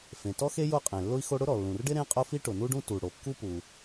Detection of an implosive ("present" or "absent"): absent